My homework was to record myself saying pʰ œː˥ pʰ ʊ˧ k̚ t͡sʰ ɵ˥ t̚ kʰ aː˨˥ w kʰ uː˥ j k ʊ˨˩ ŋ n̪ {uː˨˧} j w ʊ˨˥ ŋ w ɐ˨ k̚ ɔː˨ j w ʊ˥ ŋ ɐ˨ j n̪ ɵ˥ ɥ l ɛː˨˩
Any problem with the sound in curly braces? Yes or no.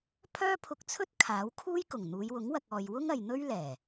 no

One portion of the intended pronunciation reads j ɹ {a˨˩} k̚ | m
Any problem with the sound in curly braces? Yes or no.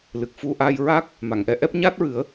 yes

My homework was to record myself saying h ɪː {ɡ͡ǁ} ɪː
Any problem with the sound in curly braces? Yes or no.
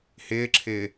yes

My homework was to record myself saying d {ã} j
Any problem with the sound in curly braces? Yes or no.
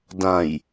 no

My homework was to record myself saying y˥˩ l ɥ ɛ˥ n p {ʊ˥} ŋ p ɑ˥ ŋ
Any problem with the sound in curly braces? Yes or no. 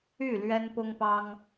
no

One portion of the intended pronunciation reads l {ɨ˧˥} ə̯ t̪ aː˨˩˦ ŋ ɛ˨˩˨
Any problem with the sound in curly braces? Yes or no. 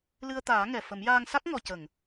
yes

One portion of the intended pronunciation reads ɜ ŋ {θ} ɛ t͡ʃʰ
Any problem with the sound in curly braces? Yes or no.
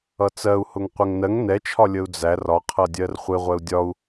yes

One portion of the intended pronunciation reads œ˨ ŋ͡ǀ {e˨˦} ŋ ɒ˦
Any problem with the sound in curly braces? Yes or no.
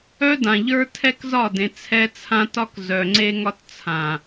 yes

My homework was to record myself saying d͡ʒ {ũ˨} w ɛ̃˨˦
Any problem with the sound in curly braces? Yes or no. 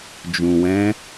no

